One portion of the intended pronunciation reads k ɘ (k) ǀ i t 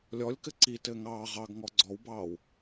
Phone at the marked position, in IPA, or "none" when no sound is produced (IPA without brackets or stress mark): none